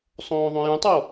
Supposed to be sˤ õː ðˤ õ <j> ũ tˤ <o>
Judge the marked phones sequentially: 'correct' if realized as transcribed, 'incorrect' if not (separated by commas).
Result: correct, correct